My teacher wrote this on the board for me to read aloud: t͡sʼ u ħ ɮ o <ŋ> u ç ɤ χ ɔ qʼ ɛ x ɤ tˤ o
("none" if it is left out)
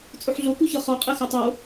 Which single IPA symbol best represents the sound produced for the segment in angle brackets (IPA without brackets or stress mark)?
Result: k